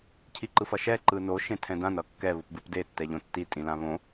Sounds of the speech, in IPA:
cʰ i ǃ ɯ f ʌ ʃ ɛ ǃ ɯ n o ʃ ẽ tʰ ɛ̃ d ã n ʌ kː ɛ β ɯ p b ɯ p d e tː ɛ ʎ õ tː i tʼ ĩ l ã β õ

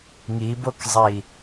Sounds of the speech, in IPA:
ŋ i b o k zˤ i

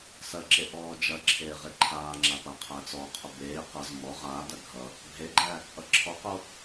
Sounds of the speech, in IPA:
s ɐ ǁ e ʔ ɔː d͡ʒ ɐ ǁʰ eː ʁ e ǃʰ aː ŋ͡ǁ a p a qʰ æ t͡s ɔ qʰ o b eː q ʌ z m ɔ ʁ aː d ɐ ɡʱ ʌ | bʱ e ɡ͡ǃ æ | ʔ ʌ ǁʰ ɔ q o

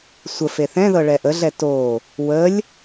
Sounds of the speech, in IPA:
sʷ ə f e θ ɛ̃ ð ɤ ɭ ɛ ʔ ə ɮ ɛ t o | w ə lʲ

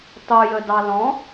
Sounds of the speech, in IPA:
tˤ u j ə d ɑ l ɔ̃

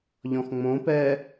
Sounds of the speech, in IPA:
ʎ ɔ̃ x ŋ͡m õ p ɛː

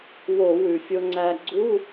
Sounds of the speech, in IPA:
w o˧˩˧ w ʉ˩ fʲ o˧ ŋ͡ǀ æ˧ ɡ͡ǀ u˧˥˧

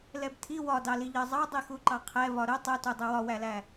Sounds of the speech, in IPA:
l ɛ b tʰ i w ɒ d ɑ l i ʎ ɜ zˤ ɑ dˤ i x u ǃ ɑ qʰ ɛ v ɒ ɾ ʊ tˤ u t u dˤ ɛ w ɒ w æ l æ

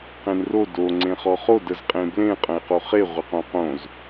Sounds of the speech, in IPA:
q ẽ n r o d o ŋ͡ǀ ẽ χ ɔ χ o d ə z qʼ ẽ b l ẽ qʼ ə̃ e̯ q o χ e ʁʷ ə q õ q õ z

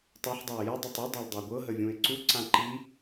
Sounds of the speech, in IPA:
tˤ o ħ dˤ a ɪ̯ j ə dˤ ɤ tˤ u dˤ a l dˤ a ɡʷ ɤ ɦ ə vʲ ũ ɪ̯ ǀ u ǀ ã ǃ i

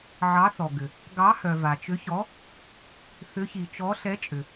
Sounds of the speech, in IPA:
ʕ ɑ˨˦ θ ɔ˩ ɡ ʏ˩ | ɡ ɑ˨˦ h œ˩ v a˩ t͡ʃ ʏ˨˦ ç ɔ˨˦ | θ ʏ˨˦ ç i˩ t͡ʃ ɔ˨˦ ɬ ɛ˨˦ t͡ʃʼ ʏ˩

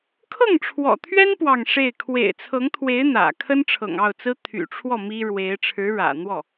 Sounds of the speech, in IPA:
kʰ ɤ˥˩ ŋ ʈ͡ʂʰ w ɔ̰˨˩ t̪ʰ ɥ ɛ˥ n p w ɑ˥˧ ŋ ʂ e˥˩ ɪ̯ kʰ w ḛ˨˩ ɪ̯ t͡sʰ ɤ˧˥ ŋ t̪ʰ w e˧˥ ɪ̯ n̪ ä̰˨˩ kʰ ə˥ n ʈ͡ʂʰ ɤ̰˨˩ ŋ ɑ˥˩ ʊ̯ t͡s ɹ̩˥ t̪ʰ y̰˨˩ ʈ͡ʂʰ w ɔ˥˩ m i˥ ɻ w e˧˥ ɪ̯ ʈ͡ʂʰ ɻ̩˧˥ ɻ ä̰˨˩ n̪ w ɔ˥˩

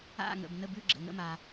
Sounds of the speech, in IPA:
a̰˥˧ ŋ ə̰˨ b n ə˥˧ b ʉ˥˧ ɡ͡ǁ ə̰˨ ŋ ə̰˥˧ m a˨

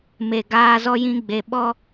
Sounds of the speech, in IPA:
m e˨ ɡ aː˨ z ɔ˨ j ĩ˨ ɡ͡b e˨ ɓ ɔ˦

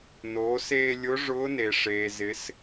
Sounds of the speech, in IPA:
n oː˩˧ s eː˧ lʲ ʊ˧˥ ʐ ʊː˧˥ n e˩ ʂ eː˩ z ɪ˩˧ s

